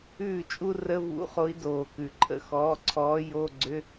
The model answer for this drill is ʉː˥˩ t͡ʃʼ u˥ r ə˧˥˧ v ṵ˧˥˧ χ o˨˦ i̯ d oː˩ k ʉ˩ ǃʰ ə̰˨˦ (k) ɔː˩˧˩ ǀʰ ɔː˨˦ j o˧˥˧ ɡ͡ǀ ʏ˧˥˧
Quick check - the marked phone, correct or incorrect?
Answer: incorrect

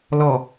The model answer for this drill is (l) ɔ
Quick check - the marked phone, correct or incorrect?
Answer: correct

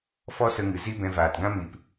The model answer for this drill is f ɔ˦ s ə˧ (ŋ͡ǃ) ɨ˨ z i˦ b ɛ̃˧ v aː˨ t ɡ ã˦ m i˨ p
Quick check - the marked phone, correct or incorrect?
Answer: incorrect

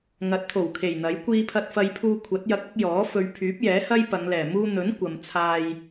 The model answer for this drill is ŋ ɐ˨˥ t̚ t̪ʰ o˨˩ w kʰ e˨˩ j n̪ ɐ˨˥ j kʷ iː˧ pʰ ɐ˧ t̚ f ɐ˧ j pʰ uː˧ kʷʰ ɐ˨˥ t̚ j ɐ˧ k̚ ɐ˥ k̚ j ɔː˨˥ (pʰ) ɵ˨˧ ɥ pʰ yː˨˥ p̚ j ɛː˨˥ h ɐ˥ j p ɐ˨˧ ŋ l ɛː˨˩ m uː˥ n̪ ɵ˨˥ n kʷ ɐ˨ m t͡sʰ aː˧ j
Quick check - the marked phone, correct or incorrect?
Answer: incorrect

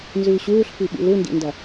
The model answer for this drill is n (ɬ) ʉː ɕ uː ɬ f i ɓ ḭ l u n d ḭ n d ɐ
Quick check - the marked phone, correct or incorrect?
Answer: incorrect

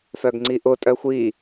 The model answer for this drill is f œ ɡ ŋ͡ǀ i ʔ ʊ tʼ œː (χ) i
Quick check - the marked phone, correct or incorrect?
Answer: incorrect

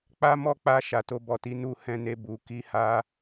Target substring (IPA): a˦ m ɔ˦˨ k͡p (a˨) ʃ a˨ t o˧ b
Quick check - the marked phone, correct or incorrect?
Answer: incorrect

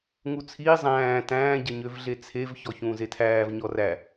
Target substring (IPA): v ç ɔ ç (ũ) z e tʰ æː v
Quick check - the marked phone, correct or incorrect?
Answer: incorrect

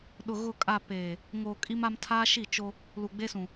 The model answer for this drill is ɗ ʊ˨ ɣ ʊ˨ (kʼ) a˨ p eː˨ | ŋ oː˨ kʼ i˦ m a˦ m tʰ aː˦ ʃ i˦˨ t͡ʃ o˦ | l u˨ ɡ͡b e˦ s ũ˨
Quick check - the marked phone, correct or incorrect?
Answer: correct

